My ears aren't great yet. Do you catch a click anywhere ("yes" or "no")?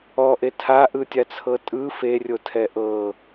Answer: no